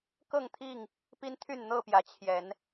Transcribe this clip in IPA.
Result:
k ɤ˥˨ ŋ t̪ʰ i˥˨ ŋ | p i˦ n t̪ʰ y˥˨ n n̪ ɤ˥˨ p j ä˨˦ t͡ɕʰ j ɛ˨˦ n

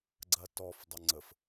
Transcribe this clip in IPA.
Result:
ɡ͡ǀ ɐ t ɔ f dˤ ɐ ŋ͡ǀ ə f

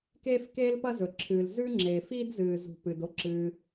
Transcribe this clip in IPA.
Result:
k eː˥ f k eː˥ l p ɐ˥ z ɵ˩ ǁʰ ɨː˩ l z ʉ˥ ŋ͡ǁ eː˩ f iː˥ d z ɨː˩ z ṳ˩ p ɨ˩ d o˥ ǁ ɨː˩

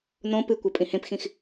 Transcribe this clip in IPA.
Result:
n õ p ɨ kʷ ɛ pʼ ĩ h ẽ p x ĩ x

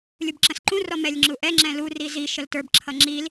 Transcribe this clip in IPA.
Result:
lʲ u b ǁ ə̃ s ǃ ũ r ɔ m ɛ lʲ ŋ͡ǁ u ʔ ɛ ŋ͡ǁ ɛ̃ l u r i z i ʃ ə l t ə˞ b ǁʰ ʌ ŋ͡ǁ i l

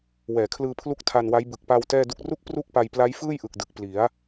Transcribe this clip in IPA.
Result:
w ɛː˩˦ kʰ l ɯː˧ pʰ l u˦˥ k̚ tʰ a˧ n w a˦˥ j b ɯ˨˩ k̚ p a˧ w t ɛː˥˩ d u˥˩ k̚ r u˦˥ k̚ p r u˥˩ k̚ p a˧ j p l a˦˥ j f ɯː˥˩ j ʔ ɯ˨˩ k̚ d ɯ˨˩ k̚ p l i˩˦ a̯

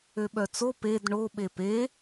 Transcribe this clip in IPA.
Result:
ø ɓ œ t͡s o p e d ɳ o ɓ e p e

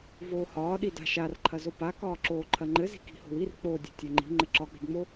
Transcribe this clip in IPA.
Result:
v oː h ɒː ɗ i d a̤ ʃ a r ǃʰ ɐ z o p a k ɒː ǁ oː ǃʰ ɐ ŋ͡ǃ ɘ z i̤ k i̤ h o̤ w i r k͡p o dʲ o̤ tʲ ɒ ŋ͡ǃ i̤ ŋ͡ǃ ɘ ǁ ɒ k͡p i̤ d ŋ͡m o

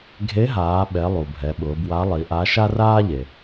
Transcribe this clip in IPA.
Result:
ɡʱ e˧˥ ɦ aː˩˧ ɓ ɛ˩˧ lˠ u˩ bʱ ɛ˩˧ ɓ ʊː˩˧ b w a˧˥ lˠ i˩˧ ʔ a˧˥ ʃ a˥ r aː˥ ʎ e˩

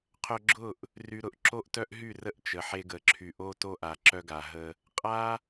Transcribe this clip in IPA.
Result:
qʰ œ˧ ɡ͡ǁ ʊ˦˨ ʔ | r y˧ ɾ ʊ˧ ʔ ǁ o˦ ʔ t œ˦ ʔ ɦ y˦˨ r ə˦ ʔ t͡ʃ ə˨ ħ e˧ ɡ ə˨ ǁʰ y˨ ʔ o˦ t o˦ ʔ a˨ ǁ œ˧ ɡ a˨ ɦ ə˧ | qʼ a˦

